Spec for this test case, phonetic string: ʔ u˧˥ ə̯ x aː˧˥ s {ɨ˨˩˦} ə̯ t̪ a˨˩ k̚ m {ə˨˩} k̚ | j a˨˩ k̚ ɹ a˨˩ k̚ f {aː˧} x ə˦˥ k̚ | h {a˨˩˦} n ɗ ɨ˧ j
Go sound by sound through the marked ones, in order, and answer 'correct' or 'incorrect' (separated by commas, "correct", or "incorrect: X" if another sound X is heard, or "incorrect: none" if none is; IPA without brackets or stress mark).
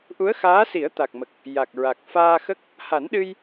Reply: incorrect: i˨˩˦, correct, correct, correct